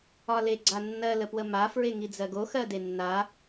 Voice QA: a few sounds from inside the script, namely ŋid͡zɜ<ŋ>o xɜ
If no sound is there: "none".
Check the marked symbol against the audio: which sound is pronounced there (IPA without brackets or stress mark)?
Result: ɡ